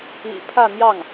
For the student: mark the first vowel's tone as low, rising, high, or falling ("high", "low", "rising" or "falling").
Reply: low